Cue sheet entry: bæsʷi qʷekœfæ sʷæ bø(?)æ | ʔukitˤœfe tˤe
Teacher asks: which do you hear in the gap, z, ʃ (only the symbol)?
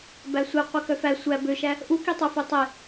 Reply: ʃ